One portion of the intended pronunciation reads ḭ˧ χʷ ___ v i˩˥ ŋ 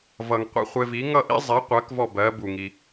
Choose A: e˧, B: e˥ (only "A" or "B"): A